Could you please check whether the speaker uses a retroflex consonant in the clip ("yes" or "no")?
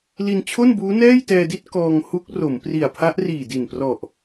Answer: no